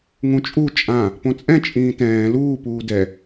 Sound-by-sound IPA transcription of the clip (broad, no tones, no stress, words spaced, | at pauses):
ŋũt͡ʃʼu t͡ʃʼã | põt͡sʼɛ̃ t͡ʃʼĩːtɛ̃ː luː puːdɛ